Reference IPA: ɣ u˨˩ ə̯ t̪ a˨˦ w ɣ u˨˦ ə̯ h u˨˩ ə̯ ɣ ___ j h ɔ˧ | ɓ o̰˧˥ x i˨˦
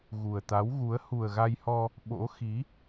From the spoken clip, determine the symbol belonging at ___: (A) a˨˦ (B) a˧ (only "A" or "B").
B